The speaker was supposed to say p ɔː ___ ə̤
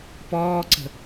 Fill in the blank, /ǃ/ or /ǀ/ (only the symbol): ǀ